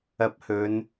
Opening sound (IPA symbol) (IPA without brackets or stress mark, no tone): ɐ